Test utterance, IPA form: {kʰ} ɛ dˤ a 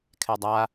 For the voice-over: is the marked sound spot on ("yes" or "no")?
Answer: yes